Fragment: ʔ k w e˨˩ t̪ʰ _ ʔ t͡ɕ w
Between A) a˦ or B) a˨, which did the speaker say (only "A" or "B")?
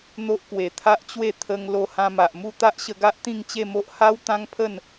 A